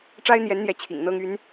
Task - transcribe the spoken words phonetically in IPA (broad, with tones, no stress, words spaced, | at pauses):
ʈ͡ʂa˥ɪ̯n̪jɛ˧˥nn̪jɛ˧˥ t͡ɕʰḭ˨˩ŋ n̪ɤ˥ŋy˧˥n